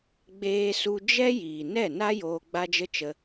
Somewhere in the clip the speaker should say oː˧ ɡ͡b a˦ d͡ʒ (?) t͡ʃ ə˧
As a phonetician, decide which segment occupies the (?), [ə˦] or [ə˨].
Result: ə˦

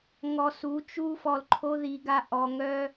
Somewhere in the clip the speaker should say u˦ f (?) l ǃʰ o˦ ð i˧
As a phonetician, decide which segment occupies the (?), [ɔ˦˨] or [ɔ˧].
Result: ɔ˧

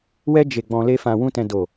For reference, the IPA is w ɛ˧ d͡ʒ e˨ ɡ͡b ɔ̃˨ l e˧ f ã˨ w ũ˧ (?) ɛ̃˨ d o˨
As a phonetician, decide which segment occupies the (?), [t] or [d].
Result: t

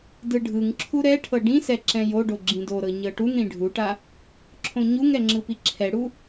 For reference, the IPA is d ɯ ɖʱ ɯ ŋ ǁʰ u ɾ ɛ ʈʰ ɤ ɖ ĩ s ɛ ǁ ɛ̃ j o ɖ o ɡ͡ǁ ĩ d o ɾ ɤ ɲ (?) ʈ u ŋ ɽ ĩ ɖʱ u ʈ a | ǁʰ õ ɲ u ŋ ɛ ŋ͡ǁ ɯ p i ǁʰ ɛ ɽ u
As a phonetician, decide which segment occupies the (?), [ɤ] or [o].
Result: ɤ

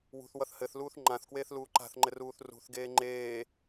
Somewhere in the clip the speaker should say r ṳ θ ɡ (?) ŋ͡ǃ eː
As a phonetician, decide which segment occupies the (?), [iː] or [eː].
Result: eː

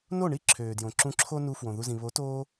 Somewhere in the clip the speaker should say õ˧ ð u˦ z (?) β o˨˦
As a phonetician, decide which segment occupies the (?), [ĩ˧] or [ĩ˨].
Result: ĩ˧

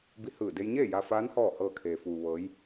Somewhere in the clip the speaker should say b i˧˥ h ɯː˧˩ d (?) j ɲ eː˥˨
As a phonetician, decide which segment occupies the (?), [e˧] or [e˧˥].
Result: e˧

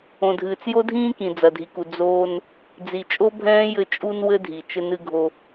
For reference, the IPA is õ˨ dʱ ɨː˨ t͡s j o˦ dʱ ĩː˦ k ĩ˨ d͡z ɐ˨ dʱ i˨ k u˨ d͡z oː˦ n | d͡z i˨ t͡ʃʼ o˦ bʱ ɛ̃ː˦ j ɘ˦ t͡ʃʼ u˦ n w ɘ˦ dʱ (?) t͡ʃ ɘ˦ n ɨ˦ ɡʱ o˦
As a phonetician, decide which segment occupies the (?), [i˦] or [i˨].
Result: i˨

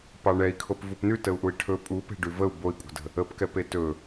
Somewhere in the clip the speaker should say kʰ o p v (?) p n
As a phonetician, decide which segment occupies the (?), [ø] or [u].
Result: u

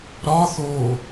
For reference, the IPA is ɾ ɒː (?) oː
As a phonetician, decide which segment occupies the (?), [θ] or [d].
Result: θ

